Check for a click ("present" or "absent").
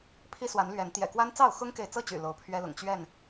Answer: absent